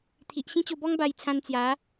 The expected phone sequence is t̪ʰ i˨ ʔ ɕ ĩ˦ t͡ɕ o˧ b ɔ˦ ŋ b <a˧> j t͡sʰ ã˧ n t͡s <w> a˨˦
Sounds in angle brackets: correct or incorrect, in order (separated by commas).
correct, incorrect